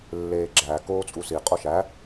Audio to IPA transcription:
lː eː ɡ͡ǁ æ k oː t͡sʼ u s i qʼ o ʃ æ

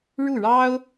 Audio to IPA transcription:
ɻ u˥˩ ɻ ɑ˥ ʊ̯

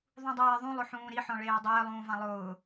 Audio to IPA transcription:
ðˤ ũ dˤ eː ðˤ ũ lˠ ʊ ħ ũː ɾ i ħ ɔ̃ ɭ eː dˤ ɪː lˠ ũː v ã lˠ ʊː

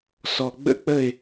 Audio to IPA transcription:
s ɔ˨ ɡ͡b ə̰˦ k͡p ə˦˨ ɪ̯

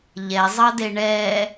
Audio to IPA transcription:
ʎ ɛ zˤ ɑ d e ɳ ɛ

